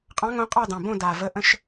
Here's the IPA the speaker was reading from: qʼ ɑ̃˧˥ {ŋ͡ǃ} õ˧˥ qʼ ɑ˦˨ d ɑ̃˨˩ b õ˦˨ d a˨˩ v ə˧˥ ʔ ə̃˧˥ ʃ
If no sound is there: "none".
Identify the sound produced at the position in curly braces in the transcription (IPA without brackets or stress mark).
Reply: ŋ